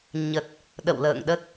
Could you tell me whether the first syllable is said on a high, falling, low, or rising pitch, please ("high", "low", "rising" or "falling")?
low